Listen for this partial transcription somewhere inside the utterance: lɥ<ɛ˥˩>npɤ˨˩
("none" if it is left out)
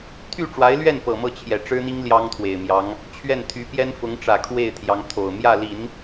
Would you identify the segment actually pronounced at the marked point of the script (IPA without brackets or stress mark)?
ɛ˥˩